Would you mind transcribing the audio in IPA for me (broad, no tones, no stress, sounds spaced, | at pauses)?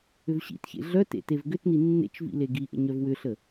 ʏ v ɕ ḭ t ç ḛ ɮ œ t ḛ t e v ɡ ʏ t n i nː ḛ t͡ʃ v ḭ l e ɡ i ʔ ə̰ ɲ œ v w ʏ ɬ ə